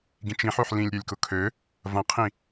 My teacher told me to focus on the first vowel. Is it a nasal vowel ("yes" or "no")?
yes